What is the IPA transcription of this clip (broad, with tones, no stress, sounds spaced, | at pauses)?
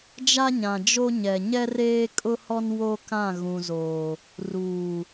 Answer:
d͡ʒ a˦ ɲ ã˨ d͡ʒ o˦ ɲ ɛ˨ ɲ ɛ˦ r eː˦ kʼ ʊ˦ h ɔ˦ n w o˦ k ã˦˨ ɣ ũ˨ z oː˨ | r uː˨